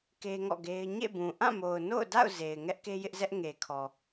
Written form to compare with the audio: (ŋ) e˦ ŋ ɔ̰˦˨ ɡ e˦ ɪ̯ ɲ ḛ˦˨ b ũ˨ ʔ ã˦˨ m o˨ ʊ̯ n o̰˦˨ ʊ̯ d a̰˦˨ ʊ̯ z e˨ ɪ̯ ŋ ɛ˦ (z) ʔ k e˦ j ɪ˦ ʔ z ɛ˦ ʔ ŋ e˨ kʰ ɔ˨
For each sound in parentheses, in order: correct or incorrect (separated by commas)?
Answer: incorrect, incorrect